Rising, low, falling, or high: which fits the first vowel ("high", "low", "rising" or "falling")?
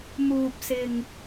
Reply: low